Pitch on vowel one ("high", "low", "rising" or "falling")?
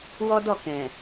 high